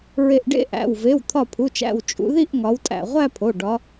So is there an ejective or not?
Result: yes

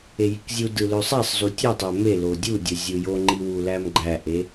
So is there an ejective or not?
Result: no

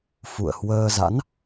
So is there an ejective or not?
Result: no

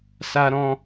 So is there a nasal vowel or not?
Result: yes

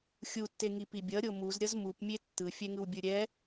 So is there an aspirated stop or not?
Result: no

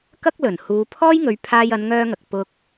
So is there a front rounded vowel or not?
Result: yes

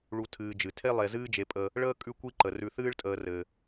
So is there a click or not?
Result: yes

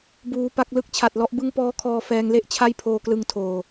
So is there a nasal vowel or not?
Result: no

